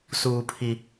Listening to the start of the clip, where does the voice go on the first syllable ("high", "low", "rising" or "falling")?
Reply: low